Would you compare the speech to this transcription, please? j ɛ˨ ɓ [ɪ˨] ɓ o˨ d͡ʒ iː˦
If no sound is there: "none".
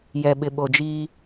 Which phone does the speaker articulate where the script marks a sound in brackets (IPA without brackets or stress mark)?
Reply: ɪ˨